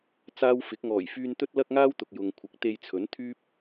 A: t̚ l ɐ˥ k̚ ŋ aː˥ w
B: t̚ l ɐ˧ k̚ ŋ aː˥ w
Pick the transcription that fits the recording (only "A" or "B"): A